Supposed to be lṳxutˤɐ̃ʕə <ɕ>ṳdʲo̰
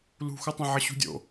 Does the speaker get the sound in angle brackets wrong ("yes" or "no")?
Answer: no